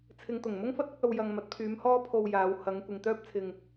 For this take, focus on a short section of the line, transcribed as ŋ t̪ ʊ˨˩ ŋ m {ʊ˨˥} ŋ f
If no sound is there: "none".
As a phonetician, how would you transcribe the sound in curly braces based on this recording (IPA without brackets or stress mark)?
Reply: ʊ˥